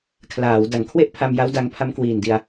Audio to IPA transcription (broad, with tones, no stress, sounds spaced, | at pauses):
kʰ l aː˩˦ w d a˨˩ ŋ kʰ w e˥˩ ʔ pʰ a˧ m j a˦˥ w d a˧ ŋ pʰ a˦˥ m k w iː˨˩ n d i˧ a̯